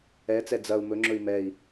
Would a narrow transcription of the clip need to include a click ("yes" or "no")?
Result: yes